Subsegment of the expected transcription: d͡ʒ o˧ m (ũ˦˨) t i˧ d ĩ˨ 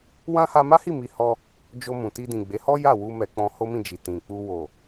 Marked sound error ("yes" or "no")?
yes